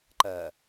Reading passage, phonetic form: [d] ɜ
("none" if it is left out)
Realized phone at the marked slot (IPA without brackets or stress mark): ǃ